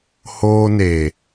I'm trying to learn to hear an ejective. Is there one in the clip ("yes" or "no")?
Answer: no